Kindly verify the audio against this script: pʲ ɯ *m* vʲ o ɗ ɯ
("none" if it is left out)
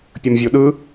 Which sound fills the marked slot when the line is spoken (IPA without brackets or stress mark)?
m